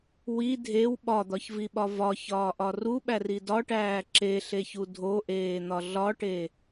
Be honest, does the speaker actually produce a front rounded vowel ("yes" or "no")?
no